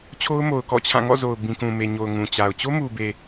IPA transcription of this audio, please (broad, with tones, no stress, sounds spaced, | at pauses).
t͡ɕʰ o˦ ʊ̯ m o˨ ʊ̯ k ɔ̰˦˨ t͡ɕʰ ã˦˨ ŋ ɔ̰˦˨ z o˨ ʊ̯ b ĩ˨ k ũ˨ m e˨ ɲ o˨ ʊ̯ ŋ ũ˨ t͡ɕ a˨ ʊ̯ t͡ɕ o˦ m u˨ b e˨